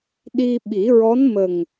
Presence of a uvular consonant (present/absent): absent